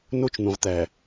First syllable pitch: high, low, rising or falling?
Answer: high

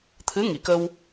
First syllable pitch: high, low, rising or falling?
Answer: rising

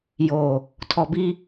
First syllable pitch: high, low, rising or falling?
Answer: low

